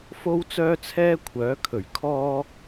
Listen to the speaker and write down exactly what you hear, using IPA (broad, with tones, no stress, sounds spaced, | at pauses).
f o˥ w t͡s œː˥ t͡sʰ ɛː˥ kʷʰ œː˨˥ kʰ ɵ˨˩ ɥ kʰ ɔː˥